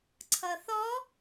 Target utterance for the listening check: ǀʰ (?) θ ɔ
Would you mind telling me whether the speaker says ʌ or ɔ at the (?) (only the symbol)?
ʌ